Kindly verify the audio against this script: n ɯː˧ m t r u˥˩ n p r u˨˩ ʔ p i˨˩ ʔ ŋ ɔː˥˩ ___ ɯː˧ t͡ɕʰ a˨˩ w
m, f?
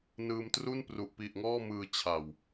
m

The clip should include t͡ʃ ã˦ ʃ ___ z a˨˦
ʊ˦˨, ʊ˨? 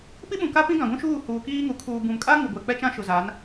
ʊ˨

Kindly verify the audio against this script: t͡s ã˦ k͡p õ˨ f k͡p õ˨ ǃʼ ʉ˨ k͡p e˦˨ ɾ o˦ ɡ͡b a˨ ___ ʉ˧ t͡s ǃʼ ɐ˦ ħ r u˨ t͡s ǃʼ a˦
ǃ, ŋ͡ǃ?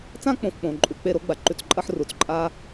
ǃ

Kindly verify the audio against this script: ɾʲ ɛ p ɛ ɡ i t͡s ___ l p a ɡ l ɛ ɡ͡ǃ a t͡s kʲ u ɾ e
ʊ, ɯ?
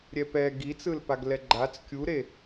ɯ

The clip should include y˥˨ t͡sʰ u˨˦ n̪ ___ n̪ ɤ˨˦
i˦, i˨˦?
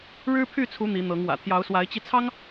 i˨˦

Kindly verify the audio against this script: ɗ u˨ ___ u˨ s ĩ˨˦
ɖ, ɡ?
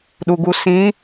ɡ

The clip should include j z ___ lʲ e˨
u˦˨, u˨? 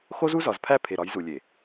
u˨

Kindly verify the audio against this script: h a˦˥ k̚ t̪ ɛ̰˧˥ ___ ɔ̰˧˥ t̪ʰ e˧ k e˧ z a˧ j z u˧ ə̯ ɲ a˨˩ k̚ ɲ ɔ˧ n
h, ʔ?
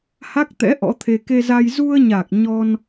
ʔ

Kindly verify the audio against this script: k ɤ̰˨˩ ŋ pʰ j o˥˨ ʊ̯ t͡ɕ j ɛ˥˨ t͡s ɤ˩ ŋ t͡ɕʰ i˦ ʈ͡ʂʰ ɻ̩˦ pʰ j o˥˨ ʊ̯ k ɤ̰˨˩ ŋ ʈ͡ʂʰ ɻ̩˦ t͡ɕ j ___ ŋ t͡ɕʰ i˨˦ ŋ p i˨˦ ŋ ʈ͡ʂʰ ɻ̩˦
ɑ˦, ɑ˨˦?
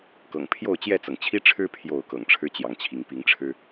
ɑ˨˦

